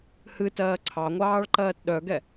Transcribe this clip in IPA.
h ɨ t ɜː ǀʰ ɑ ŋʷ ɑː ɭ ǃ ɜː t ɗ œ ɡ ɛ

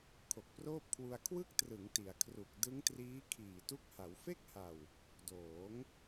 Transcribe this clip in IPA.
kʰ o˨˩ k̚ p r oː˥˩ p̚ kʰ w u˧ a̯ kʰ w ɯ˥˩ k̚ t r ɯ˩˦ ŋ t i˩˦ a̯ kʰ r u˨˩ k̚ d ɯ˦˥ ŋ t r iː˦˥ kʰ iː˨˩ t u˦˥ k̚ h a˩˦ w f e˥˩ k̚ h a˨˩ w | d oː˩˦ ŋ

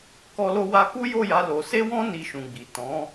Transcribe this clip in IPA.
k ɔ˧ l o˧ w a˧ k u˦ j o˦˨ j a˨˦ l o˧ s e˦ w ɔ̃˦ n i˧ ʃ ũ˨ ɡ͡b i˨ t ɔ̃˨˦

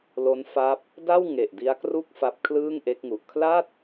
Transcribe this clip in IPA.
l o˦˥ n f a˦˥ p̚ | d a˥˩ w ŋ e˨˩ ʔ d i˦˥ a̯ k r u˥˩ k̚ f a˦˥ p̚ kʰ l ɯː˥˩ ŋ ʔ e˦˥ k̚ ŋ u˨˩ ʔ kʰ l a˥˩ t̚

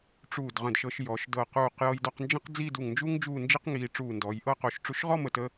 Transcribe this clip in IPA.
ʈ͡ʂ uː˧˩ d ʁ ə̃˧˩ d ʃ ɤ˧ ʃ j ɔ˩˧ ʃ d ɤ˧˩ q uː˧˩ q j ɤ˧ j d ɔ˧ q n d͡ʒ ə̃˥ q d͡z i˥˧ d u˧˩ ŋ n d͡ʒ u˥ ŋ d͡ʒ uː˥˧ n d͡ʒ i˥ q ŋ iː˧ ʈ͡ʂ uː˧˩ n d ɔ˩˧ j ʔ ɤ˥˧ q o˧ ʃ ʈ͡ʂ u˧ ʃ ʁ ɔ˥˧ m ə˧˩ t ə˧

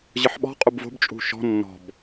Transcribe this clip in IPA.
ʑ ɯ ħ ɓ ɔ̤ qʼ u b v o̤ b t͡ʃʼ ṳ ʃ ɔ̤ nː ɔ̤ b

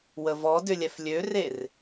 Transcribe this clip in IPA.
w ə v ɔ d ʏ lʲ ɛ f lʲ ø r e r

